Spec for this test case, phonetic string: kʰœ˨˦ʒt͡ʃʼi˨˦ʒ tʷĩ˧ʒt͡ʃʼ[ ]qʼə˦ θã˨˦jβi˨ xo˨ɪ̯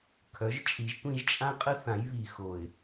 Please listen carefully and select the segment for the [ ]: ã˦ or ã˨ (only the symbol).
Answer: ã˦